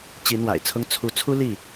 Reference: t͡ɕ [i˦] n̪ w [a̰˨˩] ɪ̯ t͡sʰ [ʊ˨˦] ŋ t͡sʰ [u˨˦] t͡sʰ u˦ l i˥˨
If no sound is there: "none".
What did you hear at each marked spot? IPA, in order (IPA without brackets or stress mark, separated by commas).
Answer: i˨˦, a̰˨˩, ʊ˦, u˨˦